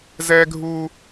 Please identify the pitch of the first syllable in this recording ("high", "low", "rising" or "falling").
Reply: high